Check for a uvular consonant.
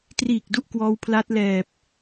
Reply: absent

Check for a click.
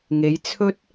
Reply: absent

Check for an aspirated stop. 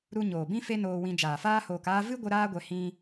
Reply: absent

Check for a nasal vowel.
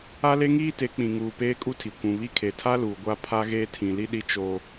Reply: present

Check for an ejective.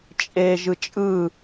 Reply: present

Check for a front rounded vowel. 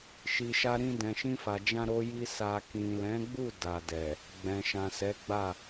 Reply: absent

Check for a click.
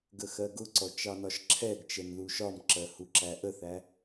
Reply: present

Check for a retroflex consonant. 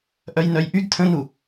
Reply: absent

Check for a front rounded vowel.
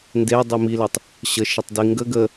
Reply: present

